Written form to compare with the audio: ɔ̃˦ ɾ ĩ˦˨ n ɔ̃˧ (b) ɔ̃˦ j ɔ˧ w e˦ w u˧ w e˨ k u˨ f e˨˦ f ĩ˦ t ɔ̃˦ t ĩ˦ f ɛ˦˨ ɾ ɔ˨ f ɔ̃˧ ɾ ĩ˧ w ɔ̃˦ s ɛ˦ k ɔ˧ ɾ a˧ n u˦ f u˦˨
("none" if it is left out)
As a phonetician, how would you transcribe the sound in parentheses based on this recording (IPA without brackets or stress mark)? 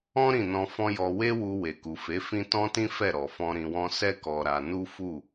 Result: f